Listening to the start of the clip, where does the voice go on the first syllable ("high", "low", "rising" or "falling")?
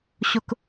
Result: high